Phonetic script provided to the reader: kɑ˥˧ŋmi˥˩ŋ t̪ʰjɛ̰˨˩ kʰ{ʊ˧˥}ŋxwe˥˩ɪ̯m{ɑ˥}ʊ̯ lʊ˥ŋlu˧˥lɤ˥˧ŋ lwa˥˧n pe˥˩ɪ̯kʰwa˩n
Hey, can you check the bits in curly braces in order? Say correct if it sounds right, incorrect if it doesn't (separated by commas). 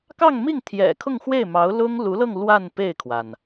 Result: incorrect, incorrect